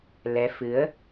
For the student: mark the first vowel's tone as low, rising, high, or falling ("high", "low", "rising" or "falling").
rising